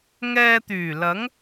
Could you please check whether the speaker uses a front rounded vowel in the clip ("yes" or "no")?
yes